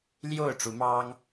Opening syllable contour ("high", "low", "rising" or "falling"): falling